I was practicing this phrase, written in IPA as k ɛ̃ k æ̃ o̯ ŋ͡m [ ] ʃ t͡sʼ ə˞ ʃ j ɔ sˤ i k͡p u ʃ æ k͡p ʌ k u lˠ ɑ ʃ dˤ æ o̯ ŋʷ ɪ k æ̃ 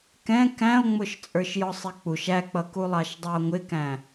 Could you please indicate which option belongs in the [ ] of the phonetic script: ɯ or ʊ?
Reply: ʊ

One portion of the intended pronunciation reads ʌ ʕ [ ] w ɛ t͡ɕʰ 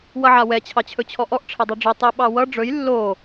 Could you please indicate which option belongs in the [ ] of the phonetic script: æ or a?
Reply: a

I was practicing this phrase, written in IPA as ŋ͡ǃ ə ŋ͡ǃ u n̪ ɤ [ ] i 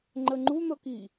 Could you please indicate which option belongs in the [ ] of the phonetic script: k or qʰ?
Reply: k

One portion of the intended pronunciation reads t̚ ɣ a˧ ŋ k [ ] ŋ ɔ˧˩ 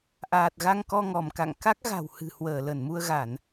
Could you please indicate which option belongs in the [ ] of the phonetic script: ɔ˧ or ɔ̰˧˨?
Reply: ɔ˧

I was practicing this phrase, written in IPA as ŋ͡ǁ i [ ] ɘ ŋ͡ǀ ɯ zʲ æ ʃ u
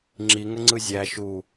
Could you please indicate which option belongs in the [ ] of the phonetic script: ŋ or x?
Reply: ŋ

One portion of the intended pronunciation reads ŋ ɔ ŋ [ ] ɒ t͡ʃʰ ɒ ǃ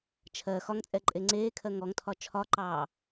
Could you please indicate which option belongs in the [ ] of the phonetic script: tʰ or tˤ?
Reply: tʰ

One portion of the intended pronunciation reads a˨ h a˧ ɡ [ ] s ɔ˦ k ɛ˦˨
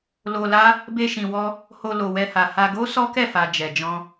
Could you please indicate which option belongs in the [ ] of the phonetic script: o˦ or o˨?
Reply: o˦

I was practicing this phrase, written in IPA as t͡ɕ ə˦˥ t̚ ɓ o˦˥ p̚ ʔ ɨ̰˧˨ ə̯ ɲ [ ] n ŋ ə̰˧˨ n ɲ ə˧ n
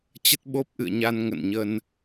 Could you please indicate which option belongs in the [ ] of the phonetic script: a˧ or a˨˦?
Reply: a˧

